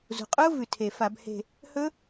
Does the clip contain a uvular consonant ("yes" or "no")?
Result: yes